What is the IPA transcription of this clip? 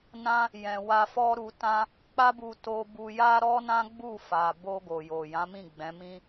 n ã˦ | j ɛ̃˨ w a˧ f ɔ˦ ɾ u˧ t ã˦ | k͡p a˦ b u˧ t o˧ b u˧ j a˦ ɾ ɔ˦ n ã˦ ɡ͡b u˦˨ f a˨ b o˧ ɡ o˨ j o˨ j ã˨˦ m ĩ˦˨ ɡ͡b ɛ̃˨˦ m ĩ˦

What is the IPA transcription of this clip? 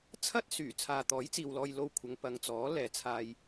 t͡sʰ ɐ˥ t̚ s yː˨˩ t͡sʰ aː˨ t̪ ɔː˨˥ j t͡s iː˨ w l ɔː˧ j l o˧ w kʷʰ ɐ˨˧ ŋ p ɐ˨ ŋ t͡s ɔː˨˥ l ɛː˨˧ t͡sʰ aː˧ j

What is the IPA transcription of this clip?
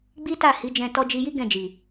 ɡ͡b i˦ t a˦˨ h i˨˦ d͡ʒ ɛ̃˧ t ɔ˧ d͡ʒ i˧ j i˦ ɡ ɛ̃˦˨ d͡ʒ i˨

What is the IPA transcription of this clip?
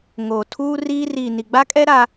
ŋ oː˨ tʰ uː˦ r iː˦ r iː˨ n i˨ ɡ͡b a˦ kʼ ɛ˦ ɾ a˦

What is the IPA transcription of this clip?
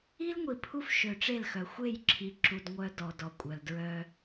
i˦ l ŋʷ i˨ pʰ u˦ f ʃ ø˨ ʈ͡ʂ e˦˨ l x œ˨ xʷ e˦˨ j ǁʰ i˨ ǁ u˨ d ŋʷ œ˦ d ɔ˨ d ɔ˨ kʷʼ œ˨ l d ɹ œ˦

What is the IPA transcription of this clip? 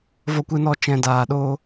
v ɔ˧ kʷ ɨ˧ n ɔ˧ t͡ʃ ɛ̃˧ d aː˧ ɗ o˦

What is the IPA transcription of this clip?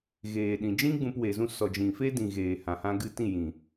ɣ eː˨ ɗ ĩ˨ d͡ʒ ĩ˦ ɡ͡b ũ˧ p w e˨ z ũ˧ s ɔ˨ d͡ʒ ĩ˨ f e˦ d ĩ˨ ɣ eː˨ h ã˨ h ã˧ ɡ ɨ˦˨ t ĩ˦˨ j ĩ˨

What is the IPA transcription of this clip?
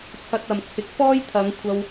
t͡sʰ ɐ˧ t̚ ɐ˨ m t͡sʰ ɪ˨ k̚ f ɔː˥ j t̪ʰ ɐ˨˧ ŋ kʷʰ ɐ˧ w

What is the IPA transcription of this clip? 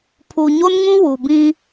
pʰ u˨ ɲ o˦ n ŋ ũ˦ w u˨ b ĩ˦

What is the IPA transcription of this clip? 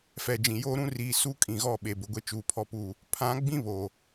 f ɛ˨ d͡ʒ ĩ˨ j oː˦ ɾ ũ˦ r iː˨ s u˦˨ kʼ ĩ˨ ɣ ɔ˦˨ ɓ e˨ b ʊ˨ ɡʷ e˦ t͡ʃ uː˨ pʰ ɔ˦ p uː˦˨ | pʰ ã˨˦ ɡ͡b ĩ˦ β oː˨

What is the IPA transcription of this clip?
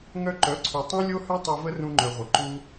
ŋ œ˧ ǃ œ˨˦ ǀʰ ʉ˨ tˤ ũ˦ lʲ o˦ h œ˦ tˤ ʉ˧ v ə˦ r ũ˧ ŋ͡ǃ œ˨ ʁʷ ə˨ ǃ u˧

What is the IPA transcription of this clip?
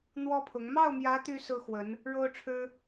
n̪ w ɔ˥ pʰ ʊ˧˥ ŋ m ɑ˥˩ ʊ̯ m j ä˧˥ t̪ y˥ s ɹ̩˥ x w ə˧˥ n | ɻ o˥ ʊ̯ ʈ͡ʂʰ ɻ̩˥

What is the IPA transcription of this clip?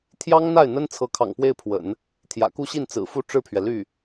t̪ʰ j ɑ˥ ŋ n̪ a˥˩ ɪ̯ n̪ ə˥ n t͡sʰ ɤ˧˥ kʰ ɑ̰˨˩ ŋ p w e˥˩ ɪ̯ pʰ w ə̰˨˩˦ n | t̪ʰ j ä̰˨˩ k u˥˧ ɕ i˥˩ n t͡s ɹ̩˨˩ f u˥˧ ʈ͡ʂ ɻ̩˥˩ pʰ ɥ ɛ˩ l y˥˩

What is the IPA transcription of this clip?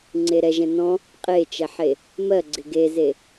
ŋ͡ǀ e ɾ ɛ ʒ ɛ̃ n ɔ̃ | qʼ e t͡ʃ ɛ ħ e | m ɜ ɡ͡ǀ ɪ ɡ e z e

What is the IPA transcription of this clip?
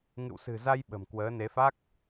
ŋ ɨ̰˧˨ w s ɨ̤˨˩ z a˧ j ɓ ə̤˨˩ m k w əː˨˦ n e˨˦ f a˦˥ k̚

